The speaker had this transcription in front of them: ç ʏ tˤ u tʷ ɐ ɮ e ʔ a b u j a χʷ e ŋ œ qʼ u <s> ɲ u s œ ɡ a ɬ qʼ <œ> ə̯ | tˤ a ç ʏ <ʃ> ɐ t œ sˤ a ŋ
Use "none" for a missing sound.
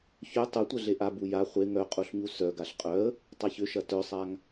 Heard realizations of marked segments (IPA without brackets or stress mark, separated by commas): ɬ, œ, ʃ